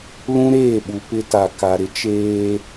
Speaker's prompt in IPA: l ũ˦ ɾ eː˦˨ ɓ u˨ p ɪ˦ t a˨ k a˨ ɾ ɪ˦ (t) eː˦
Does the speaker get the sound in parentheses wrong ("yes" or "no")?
yes